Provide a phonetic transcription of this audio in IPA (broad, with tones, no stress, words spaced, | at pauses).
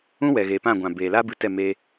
ũ˦ wɛ˨ɣeː˨pã˦˨ ɡʷã˨ beː˨la˦ bɨ˧ tɛ˦˨me˧